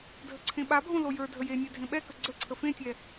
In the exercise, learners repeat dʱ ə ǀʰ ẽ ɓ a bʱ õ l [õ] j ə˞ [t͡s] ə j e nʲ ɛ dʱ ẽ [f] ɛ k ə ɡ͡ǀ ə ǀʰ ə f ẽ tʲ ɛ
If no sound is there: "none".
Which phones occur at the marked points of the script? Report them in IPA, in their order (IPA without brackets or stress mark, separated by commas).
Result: o, dʱ, ɓ